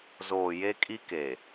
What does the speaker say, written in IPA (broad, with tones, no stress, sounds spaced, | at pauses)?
z oː˨ j e˦ kʼ i˦ k e˨